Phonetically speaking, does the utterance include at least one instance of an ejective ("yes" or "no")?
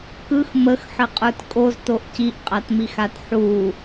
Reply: yes